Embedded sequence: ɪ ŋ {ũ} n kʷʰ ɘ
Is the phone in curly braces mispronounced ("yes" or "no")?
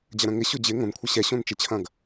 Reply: yes